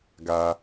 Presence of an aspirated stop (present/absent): absent